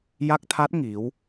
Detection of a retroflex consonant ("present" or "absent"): absent